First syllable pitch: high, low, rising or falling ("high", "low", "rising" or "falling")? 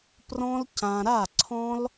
high